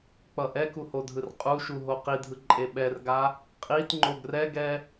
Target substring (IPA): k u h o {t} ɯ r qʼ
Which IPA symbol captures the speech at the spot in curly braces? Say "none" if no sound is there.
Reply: dʱ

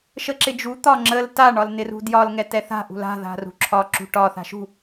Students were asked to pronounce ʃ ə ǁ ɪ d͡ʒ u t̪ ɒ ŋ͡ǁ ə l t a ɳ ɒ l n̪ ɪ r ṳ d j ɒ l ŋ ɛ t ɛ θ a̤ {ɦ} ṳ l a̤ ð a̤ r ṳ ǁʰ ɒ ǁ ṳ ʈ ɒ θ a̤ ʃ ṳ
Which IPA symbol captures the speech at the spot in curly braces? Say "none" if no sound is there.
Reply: ʔ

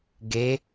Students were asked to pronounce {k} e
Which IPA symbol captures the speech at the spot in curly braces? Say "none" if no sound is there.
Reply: ɡ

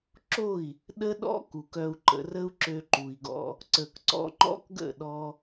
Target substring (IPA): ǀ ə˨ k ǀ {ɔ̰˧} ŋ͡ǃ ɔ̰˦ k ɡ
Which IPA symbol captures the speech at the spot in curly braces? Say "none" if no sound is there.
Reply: ɔ̰˧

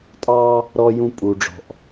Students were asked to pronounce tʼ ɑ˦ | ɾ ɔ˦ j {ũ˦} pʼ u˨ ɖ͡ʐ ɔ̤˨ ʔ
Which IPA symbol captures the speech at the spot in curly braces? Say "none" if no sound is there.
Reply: ũ˦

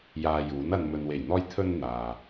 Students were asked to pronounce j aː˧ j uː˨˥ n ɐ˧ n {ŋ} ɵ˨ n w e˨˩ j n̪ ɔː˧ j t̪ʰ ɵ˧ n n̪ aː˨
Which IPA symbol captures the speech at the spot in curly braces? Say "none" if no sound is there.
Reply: m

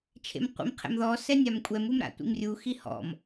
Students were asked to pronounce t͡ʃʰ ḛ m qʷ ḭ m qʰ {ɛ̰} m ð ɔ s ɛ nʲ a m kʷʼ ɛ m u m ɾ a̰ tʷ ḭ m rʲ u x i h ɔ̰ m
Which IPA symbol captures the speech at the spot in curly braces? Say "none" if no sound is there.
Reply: ɛ̰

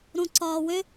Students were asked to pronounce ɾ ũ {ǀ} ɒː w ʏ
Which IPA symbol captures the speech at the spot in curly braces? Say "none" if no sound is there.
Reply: ǀ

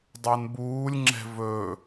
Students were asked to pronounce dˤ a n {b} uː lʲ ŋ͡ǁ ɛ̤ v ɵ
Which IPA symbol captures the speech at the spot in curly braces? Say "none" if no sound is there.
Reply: b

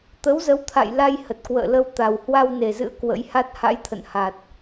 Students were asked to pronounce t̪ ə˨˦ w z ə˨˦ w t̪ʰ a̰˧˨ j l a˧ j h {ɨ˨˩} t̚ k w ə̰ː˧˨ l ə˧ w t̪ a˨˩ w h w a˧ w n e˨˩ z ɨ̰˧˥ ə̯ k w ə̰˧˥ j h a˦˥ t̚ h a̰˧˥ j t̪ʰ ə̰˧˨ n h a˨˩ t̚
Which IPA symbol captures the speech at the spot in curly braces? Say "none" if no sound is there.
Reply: ə˨˩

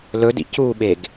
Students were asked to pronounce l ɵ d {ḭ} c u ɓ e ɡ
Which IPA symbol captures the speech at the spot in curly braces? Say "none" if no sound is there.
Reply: ḭ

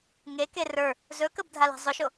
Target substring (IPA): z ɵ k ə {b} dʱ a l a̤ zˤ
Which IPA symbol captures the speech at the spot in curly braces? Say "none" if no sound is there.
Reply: b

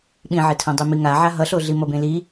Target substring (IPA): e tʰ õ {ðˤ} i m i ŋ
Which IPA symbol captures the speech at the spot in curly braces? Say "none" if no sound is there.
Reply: dˤ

